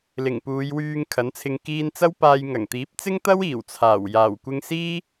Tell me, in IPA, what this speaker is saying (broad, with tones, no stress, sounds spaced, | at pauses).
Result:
l ɪ˨˩ ŋ p uː˨˧ j w yː˧ ŋ kʰ ɐ˨˥ n t͡sʰ ɪ˧ ŋ k iː˧ n t͡s ɐ˥ w p aː˧ j ŋ ɐ˨˩ ŋ t̪ iː˨˥ p̚ t͡s ɪ˥ ŋ t̪ ɐ˥ w iː˨˩ w t͡sʰ aː˨˩ w j aː˨˩ w kʷ ɪ˧ ŋ s iː˥